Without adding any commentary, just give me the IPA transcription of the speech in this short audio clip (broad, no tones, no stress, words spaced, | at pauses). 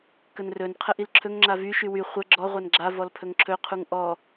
kənrɵn qʰəʔilǁʰɵŋ ŋ͡ǁavy ʃywy χʷə ɡ͡ǁɔ ʁʷanɡ͡ǁa vɔlpʰɵŋǁʰɵ qʰuŋʔɔ